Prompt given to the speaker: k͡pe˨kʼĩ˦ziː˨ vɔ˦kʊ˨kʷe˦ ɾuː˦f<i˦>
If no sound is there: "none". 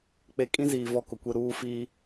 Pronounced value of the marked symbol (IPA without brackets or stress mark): iː˦